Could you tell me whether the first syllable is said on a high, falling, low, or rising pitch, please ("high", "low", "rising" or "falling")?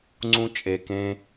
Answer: high